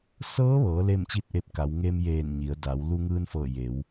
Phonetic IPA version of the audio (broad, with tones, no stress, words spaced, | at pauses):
sɤː˧˥ʋɤː˩˧ le˥˨mt͡ɕi˥˨t̚ʔe˧p̚ ka˩˧w ŋe˧mjeː˧˩n ɲi˩˧ə̯da˩˧w lu˧ŋɯː˧nfɤː˧˩ je˩˧w